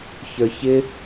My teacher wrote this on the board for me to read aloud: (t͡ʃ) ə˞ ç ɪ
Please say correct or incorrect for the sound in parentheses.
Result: incorrect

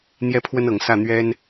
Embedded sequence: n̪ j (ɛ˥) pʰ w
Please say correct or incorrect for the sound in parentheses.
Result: correct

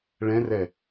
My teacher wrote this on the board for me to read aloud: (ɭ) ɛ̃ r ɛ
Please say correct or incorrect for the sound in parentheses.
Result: correct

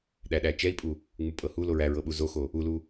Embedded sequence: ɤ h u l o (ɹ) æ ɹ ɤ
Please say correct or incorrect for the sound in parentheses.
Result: correct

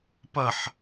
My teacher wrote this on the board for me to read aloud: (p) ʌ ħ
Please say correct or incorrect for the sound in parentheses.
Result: correct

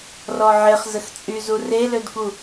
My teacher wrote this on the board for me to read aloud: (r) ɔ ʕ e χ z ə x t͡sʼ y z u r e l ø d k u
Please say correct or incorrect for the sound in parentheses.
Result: correct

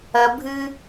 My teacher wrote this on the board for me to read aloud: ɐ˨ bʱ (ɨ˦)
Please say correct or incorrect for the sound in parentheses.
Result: correct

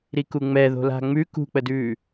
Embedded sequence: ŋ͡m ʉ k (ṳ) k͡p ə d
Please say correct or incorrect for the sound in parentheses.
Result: correct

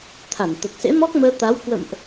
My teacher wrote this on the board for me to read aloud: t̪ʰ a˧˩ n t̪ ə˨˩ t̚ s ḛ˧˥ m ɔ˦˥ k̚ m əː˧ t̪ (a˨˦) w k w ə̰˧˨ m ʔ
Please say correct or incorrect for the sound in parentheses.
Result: correct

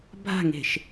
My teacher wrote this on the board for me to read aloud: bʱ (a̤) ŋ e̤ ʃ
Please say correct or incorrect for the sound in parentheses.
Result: correct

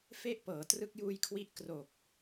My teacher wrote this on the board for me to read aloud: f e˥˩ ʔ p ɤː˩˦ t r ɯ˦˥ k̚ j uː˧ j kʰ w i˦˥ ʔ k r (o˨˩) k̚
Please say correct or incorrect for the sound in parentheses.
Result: correct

